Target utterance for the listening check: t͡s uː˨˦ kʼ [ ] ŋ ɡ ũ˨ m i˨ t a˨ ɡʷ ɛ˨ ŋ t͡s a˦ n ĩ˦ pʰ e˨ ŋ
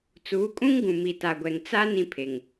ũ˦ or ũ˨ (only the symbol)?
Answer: ũ˦